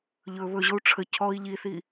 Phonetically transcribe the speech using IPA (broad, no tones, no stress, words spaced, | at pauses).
ʎɵ βɵʑou̯ ʈ͡ʂʰə cʰɔi̯ ʎiθi